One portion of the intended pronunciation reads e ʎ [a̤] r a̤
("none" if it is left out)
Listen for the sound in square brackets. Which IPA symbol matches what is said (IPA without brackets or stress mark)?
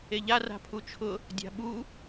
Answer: a